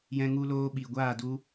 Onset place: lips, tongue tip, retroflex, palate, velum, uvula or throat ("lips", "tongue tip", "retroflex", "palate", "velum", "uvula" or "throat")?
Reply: palate